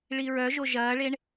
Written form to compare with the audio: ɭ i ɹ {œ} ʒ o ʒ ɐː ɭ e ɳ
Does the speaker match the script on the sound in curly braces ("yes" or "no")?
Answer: yes